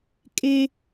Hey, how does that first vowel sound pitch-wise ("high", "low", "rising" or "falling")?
high